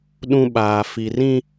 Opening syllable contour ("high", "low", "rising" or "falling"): high